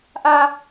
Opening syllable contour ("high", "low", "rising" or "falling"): high